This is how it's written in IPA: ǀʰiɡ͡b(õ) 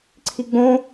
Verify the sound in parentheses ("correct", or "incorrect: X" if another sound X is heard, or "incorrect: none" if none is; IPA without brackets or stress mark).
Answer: correct